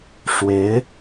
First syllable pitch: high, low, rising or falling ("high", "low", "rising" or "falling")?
rising